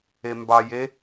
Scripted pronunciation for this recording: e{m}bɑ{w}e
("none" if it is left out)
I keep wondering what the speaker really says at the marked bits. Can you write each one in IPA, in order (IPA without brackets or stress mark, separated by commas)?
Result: m, j